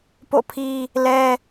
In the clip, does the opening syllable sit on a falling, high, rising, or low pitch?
falling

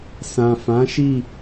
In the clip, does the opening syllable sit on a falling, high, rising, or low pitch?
low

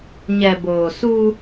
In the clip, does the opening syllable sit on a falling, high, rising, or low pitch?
low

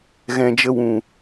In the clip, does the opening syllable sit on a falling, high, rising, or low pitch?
low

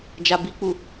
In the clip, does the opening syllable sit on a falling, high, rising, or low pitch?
low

